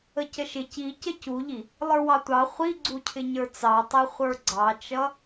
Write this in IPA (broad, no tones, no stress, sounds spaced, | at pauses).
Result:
ə c ə ʃ ɪ c i c ə c u ʎ i | lˠ ə˞ w ɑ tʷ ɑ χʷ i ɡ͡ǀ u cʰ ɪ ɲ ə˞ t͡s ɑ tˤ ɛ χʷ ə˞ ɡ͡ǀ ɑ t͡ʃ ʌ